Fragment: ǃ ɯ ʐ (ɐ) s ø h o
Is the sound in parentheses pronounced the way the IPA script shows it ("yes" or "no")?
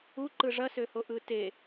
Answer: yes